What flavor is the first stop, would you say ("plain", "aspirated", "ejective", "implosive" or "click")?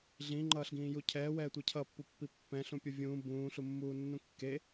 click